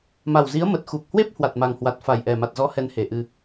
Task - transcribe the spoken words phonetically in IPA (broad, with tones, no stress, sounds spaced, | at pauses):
m a˨˩ w z i˨˦ ə̯ m ə˨˩ t̚ x u˨˩ k̚ h w e˦˥ p̚ h w a˨˩ t̚ m a˨˩ ŋ h w a˨˩ t̚ f a˨˩ j ʔ ɛ˨˩ m a˨˩ t̚ z ɔ˨˦ h ɛ˨˦ n h e˨˩ ʔ ɨ˧